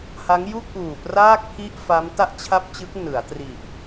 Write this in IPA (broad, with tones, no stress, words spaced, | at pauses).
ha˦˥ŋ ju˥˩k̚ʔuː˨˩praː˥˩k̚ pʰi˥˩ʔfa˦˥m ta˥˩ʔt͡ɕʰa˥˩p̚t͡ɕɯ˦˥k̚ nɯ˩˦a̯tri˨˩ʔ